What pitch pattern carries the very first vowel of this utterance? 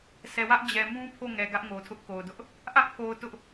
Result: low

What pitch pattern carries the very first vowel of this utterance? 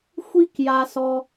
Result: high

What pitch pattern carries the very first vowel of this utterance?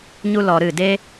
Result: high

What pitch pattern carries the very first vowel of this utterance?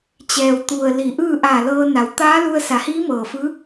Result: low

